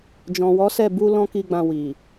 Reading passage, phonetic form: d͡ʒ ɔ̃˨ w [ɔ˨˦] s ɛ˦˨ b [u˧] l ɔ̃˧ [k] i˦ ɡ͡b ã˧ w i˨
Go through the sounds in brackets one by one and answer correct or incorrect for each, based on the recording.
correct, correct, correct

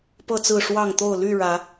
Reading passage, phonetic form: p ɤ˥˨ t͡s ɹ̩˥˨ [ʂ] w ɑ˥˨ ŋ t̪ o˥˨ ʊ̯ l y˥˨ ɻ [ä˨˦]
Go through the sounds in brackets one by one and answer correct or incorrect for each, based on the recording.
correct, correct

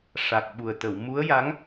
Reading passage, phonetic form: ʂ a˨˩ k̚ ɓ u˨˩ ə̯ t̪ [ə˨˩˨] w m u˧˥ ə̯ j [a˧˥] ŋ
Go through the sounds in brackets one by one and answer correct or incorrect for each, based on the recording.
correct, correct

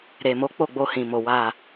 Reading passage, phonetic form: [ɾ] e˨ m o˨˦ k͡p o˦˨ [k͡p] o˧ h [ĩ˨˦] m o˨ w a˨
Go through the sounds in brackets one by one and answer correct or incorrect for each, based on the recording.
correct, incorrect, incorrect

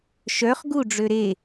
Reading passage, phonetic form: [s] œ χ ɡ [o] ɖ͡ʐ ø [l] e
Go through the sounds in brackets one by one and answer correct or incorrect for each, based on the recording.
incorrect, incorrect, incorrect

